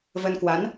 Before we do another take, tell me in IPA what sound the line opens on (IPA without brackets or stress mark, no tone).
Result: v